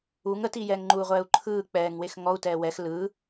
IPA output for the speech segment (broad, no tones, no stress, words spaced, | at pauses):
uŋ əti jɛːŋŋ͡ǃuːʁʷɛːu̯ǃʰɯː k͡pɛːŋwex ŋɔu̯tɛː wɛx lɯː